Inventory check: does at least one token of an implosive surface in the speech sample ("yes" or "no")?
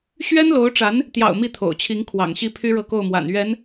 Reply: no